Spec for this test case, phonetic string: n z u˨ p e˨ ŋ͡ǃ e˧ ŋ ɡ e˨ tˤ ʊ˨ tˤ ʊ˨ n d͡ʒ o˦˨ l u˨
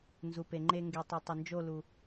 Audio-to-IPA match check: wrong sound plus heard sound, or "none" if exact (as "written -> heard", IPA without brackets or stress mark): none